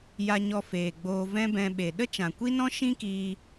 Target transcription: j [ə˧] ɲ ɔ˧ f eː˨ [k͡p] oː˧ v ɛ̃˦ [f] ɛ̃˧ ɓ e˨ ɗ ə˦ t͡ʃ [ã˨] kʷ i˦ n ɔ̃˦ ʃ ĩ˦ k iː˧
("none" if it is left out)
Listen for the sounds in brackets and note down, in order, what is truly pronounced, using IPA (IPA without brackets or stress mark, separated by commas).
a˧, ɡ͡b, b, ã˨